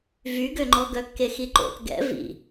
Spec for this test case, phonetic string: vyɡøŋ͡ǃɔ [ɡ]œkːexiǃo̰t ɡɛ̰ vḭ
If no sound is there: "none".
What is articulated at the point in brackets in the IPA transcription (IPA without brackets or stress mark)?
ɡ